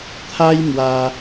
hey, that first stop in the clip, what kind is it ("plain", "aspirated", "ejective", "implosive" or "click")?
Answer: aspirated